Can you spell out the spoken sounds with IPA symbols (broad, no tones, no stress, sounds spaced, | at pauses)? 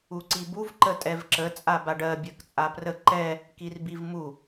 u ǀ i b u v ǃ ə tʼ ɛ v ǁ ə t͡sʼ a b a ɖ ɜ bʲ ɜ k t͡sʼ a p r ə ǃ ɛ | k i r b i v m u